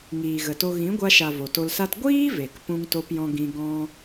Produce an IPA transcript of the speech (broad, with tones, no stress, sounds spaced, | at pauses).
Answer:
ŋ iː˨ ɣ ə˨ t o˧ ɣ ĩ˨˦ ɡʷ a˧ ʃ a˨ v o˨ t o˧ l s a˦ t ɡʷ iː˦ v e˨ k p ũ˦ ŋ t o˦ p j ɔ̃˦ ɡ ĩ˧ ɡ ɔ̃˦